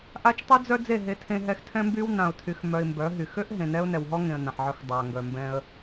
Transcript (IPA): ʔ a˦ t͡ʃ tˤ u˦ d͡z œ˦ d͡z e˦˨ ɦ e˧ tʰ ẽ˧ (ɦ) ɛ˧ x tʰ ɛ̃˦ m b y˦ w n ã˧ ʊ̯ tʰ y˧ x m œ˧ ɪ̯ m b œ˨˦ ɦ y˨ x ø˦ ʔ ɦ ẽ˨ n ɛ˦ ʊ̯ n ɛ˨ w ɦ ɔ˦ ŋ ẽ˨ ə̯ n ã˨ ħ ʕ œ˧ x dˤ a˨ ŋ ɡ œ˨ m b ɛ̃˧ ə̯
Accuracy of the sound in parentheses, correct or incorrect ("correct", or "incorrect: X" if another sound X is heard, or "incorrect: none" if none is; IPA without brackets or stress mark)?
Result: correct